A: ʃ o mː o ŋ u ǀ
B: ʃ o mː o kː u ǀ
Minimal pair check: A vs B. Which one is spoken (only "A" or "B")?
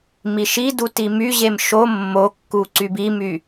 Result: B